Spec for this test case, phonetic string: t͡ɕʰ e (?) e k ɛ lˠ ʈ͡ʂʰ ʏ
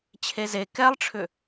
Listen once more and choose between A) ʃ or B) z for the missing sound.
B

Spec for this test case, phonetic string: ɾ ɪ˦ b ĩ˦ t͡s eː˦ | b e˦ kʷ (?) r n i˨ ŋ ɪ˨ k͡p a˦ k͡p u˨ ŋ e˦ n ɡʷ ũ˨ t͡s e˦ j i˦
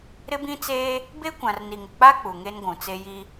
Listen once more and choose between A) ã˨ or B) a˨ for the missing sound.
A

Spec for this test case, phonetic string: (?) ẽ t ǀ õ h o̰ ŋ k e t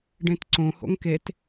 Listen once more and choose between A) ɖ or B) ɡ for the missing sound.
A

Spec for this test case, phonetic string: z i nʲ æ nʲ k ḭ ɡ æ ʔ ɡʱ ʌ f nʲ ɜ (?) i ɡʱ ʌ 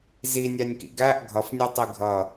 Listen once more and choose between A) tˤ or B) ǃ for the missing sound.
A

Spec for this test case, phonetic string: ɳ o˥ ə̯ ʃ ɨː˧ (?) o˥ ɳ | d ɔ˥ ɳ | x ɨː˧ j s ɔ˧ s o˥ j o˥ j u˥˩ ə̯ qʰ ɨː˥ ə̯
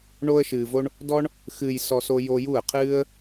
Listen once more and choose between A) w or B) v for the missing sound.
B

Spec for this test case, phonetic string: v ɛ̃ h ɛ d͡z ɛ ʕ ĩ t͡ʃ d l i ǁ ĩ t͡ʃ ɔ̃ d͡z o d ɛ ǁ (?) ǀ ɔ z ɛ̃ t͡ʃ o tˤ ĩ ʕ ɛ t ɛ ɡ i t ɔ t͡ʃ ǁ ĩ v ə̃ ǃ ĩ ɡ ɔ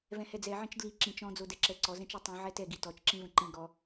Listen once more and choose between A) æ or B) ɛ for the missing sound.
B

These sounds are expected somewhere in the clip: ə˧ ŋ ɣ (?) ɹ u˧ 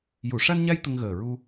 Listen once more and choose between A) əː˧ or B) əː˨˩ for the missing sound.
B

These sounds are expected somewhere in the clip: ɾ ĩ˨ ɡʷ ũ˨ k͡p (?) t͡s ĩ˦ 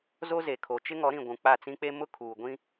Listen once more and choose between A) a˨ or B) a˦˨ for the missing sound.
B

